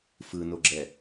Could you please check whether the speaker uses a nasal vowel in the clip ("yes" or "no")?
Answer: no